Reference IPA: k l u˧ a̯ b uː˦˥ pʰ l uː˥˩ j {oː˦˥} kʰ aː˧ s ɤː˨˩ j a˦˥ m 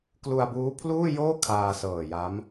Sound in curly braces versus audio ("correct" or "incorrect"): incorrect